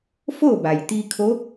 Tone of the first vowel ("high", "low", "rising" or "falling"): falling